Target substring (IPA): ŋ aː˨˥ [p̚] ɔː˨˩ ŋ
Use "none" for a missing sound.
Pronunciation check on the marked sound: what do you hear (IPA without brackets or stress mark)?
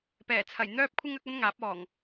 p̚